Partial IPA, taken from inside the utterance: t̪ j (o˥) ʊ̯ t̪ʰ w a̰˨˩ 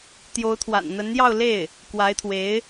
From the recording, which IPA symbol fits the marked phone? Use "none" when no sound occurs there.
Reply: o˧˥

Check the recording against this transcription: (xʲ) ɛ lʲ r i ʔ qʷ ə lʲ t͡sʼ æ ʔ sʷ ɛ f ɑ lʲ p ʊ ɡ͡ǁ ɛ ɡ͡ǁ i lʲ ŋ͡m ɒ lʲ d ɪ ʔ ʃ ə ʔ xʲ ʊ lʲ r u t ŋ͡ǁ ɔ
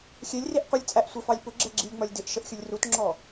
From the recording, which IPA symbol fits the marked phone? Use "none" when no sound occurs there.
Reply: xʲ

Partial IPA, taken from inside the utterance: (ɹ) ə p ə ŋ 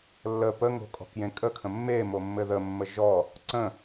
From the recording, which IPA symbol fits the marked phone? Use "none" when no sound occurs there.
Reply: lː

